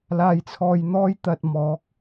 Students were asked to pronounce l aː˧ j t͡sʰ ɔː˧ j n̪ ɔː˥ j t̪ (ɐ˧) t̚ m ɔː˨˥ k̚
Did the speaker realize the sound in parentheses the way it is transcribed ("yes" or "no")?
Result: yes